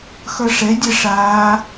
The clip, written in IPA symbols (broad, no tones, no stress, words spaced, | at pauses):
xʌʂɛdʲɛ ʂa